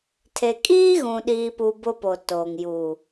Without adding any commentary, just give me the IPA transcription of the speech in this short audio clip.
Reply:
tʰ e˨ kʼ iː˦ ɣ ũ˨ ɗ iː˨ p u˨ b ʊ˦ p o˨ t oː˨ ŋ j u˨

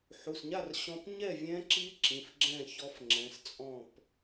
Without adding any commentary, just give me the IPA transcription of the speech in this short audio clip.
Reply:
ħ u˩˧˩ s ɲ a˥˨ r ɕ ɔ̃˦˥ p ɲ ɛ˥˨ vʲ ɛ̃˦˥ ǁ i˦˥ ǁ ĩ˩˧˩ f ɡ͡ǁ ɛ̃˥˨ ç ɔ˦˥ f ŋ͡ǁ ɛ̃˩˧˩ s t͡sʼ ɔ̃˥˨ p

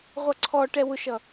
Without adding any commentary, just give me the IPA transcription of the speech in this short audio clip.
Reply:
ʁʷ ʌ ǀʰ ɔ ʈ ɛ w ʊ ʃ ʌ

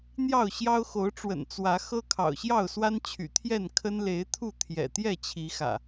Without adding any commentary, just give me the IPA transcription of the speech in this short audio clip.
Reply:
n̪ j ɑ˥˨ ʊ̯ ɕ j ɑ˦ ʊ̯ x o˨˦ ʊ̯ ʈ͡ʂ w ə̰˨˩ n t͡s w ä˨˦ x ɤ˦ kʰ ɑ̰˨˩ ʊ̯ ɕ j ɑ˥˨ ʊ̯ s w a˦ n t͡ɕʰ y̰˨˩ t̪ʰ j ɛ˥˨ n kʰ ə˦ n l e˨˦ ɪ̯ t̪ʰ u˥˨ t̪ʰ j ɛ̰˨˩ t̪ j ɛ˥˨ t͡ɕʰ i˨˦ x ä̰˨˩

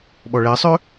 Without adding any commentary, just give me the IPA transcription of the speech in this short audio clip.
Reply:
ɓ ɔ ɭ ɛ sˤ ø

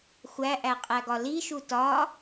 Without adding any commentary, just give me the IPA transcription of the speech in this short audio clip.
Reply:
xʷ æ ʔ æ qʼ æ ɡ ɒ l i ʃ u t ɒ

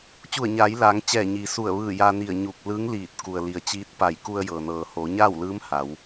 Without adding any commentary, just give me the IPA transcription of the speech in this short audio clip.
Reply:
t͡ɕ u˧˩ ə̯ ɲ aː˩˧ j l aː˩˧ ŋ t͡ɕ ɛː˧˩ ɲ iː˩ s u˧˩ ə̯ ʋ ɯː˧˩ j a˧ n i˧˩ ə̯ ɲ u˧˩ k̚ l ɯː˧˥ ŋ l iː˧˩ t̚ k u˩ ə̯ l i˩ ə̯ t͡ɕ iː˧˥ t̚ p a˧˩ j k u˧ ə̯ j ɤː˩ n ɤː˩ h oː˩˧ ɲ aː˥˨ w l ɯː˧˥ m h a˩˧ w

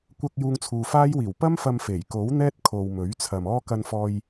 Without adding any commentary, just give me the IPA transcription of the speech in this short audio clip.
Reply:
kʷ ɐ˧ k̚ j uː˧ ŋ t͡sʰ uː˨ f aː˥ j w iː˨˩ w p ɐ˥ m f ɐ˧ m f e˨˩ j k o˨˥ w n̪ ɛː˥ t̚ kʰ o˨ w m ɵ˨˥ ɥ t͡sʰ ɐ˨ m ɔː˥ k ɐ˧ n f ɔː˧ j

